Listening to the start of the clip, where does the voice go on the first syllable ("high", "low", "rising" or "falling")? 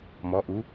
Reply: rising